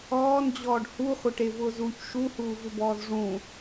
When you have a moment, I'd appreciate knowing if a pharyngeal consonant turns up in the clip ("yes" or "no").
no